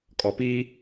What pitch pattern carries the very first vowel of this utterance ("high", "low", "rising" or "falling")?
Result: low